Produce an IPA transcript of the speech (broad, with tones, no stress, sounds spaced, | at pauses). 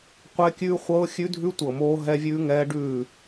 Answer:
qʷ ɛ˦ kʲ ʉː˦ χʷ ɤː˦ xʲ ʉ˦ dʱ ʉ˦ tʷ ɤ˨ m oː˦ ɦ ɛ˦ vʲ ʉː˦ ŋ ɛː˦ ɖ ʉː˦˨